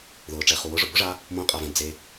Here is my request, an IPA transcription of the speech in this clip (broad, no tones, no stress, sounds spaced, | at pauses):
ð ʊː ʈ͡ʂ ɛ χ u w ʊ ʐ ʊ b ʊ ʐ a | m õ qʼ a v ɛ̃ d͡z e